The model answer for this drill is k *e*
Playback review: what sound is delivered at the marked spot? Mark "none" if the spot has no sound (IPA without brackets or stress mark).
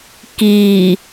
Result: i